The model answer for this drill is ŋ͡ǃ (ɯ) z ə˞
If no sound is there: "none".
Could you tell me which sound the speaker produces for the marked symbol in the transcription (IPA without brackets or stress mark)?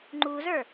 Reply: u